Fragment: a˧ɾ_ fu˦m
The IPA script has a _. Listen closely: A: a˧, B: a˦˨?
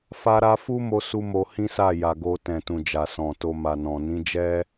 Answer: A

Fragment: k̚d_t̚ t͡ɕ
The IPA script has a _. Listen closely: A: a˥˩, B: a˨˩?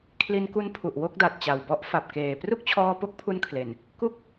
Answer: B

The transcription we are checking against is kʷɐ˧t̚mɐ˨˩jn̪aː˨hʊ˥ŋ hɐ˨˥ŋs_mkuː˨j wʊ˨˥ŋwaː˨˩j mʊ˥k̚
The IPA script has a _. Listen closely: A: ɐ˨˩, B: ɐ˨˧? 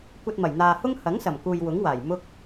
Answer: A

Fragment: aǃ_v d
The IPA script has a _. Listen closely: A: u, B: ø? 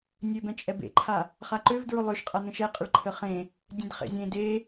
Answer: B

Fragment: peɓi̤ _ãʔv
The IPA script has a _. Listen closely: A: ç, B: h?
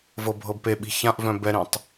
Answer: A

